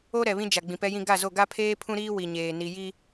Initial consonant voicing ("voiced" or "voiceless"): voiced